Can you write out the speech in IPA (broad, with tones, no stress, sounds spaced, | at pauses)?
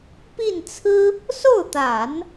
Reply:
p i˥˩ n t͡sʰ ɹ̩˥ | s o˥˩ ʊ̯ t̪ a˨˩˦ n